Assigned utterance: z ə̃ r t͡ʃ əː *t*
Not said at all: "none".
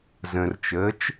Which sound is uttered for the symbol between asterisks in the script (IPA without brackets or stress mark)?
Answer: t͡ʃ